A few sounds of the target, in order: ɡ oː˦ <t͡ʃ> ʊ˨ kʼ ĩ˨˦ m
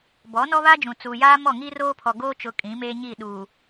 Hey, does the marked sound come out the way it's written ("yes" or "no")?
yes